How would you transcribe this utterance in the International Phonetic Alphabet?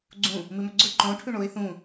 ɡ͡ǀũ | mɨmɵɡ͡ǀɵ ǃõ ʈʰʉɳoɪ̯ θũ

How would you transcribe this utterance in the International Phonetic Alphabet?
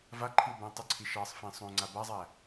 vaǃʰiw bæ̃tˤʏǀʰi ʃɑsˤfĩ sˤõ ŋ͡ǀabazˤæ

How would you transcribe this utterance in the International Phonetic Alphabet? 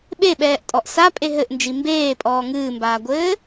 ɓeɓɛːʔtʼɔʔ sapʼe ɦɘʔnd͡ʒi mbeːpʼɔː ŋɨːmbaːɡʷɘː

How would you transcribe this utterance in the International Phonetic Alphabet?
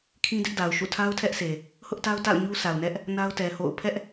kʰĩ˦dɪ˦ʔda˨ʊ̯ʃṵ˦˨ tʰa˦ʊ̯tʰɛ˦ʔse˨ | hʊ˦ʔta˦ʊ̯ ta̰˦˨ʊ̯ɲu˦ sʰa˨ʊ̯nɛ˦ʔ | na˦ʊ̯tɛ˨ho̰˦˨ʊ̯ pʰɛ˦ʔ

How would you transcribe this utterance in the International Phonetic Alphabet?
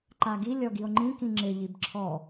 ǃaɡi lʲɔɡio̯ŋ͡ǃĩ kĩŋ͡ǁɪ ʎibǁʰɔ

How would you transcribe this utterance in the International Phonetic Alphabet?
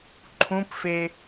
ǃʰũpfe

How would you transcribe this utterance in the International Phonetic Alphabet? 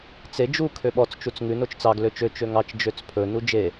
t͡se d͡ʒu kʰøɓɔt͡s t͡ʃut͡sŋʉ not͡ʃt͡sɑɡ løt͡ʃø t͡ʃøŋɑt͡ʃ d͡ʒøt͡spʰɵ nud͡ʒe

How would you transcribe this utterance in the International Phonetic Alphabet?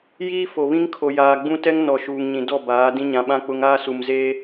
jiː˦fo˨βĩ˦ŋ kʰo˨jaː˨ɡ͡bũ˦ tɛ˦ŋnɔ˨ ʃuː˨ŋɲĩ˨dɔ˦˨baː˨˦ dĩ˦ɲã˨˦ɓã˦ k͡pʊ˦ŋ aː˦ su˨mzeː˦

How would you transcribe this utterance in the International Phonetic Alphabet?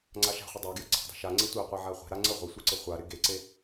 ŋ͡ǀaʃa̤χʷɪ dˤaɡjə ǀʰa̤dˤe̤ʃaŋ͡ǀe tʷɪqʷe ʕaχʷe̤ɾa ŋ͡ǀə ʁʷe sʷeǀəχʷaɾɪ ɡeǀe

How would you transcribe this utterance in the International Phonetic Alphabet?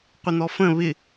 qʷɪn̪ɔfə̃ βɪ

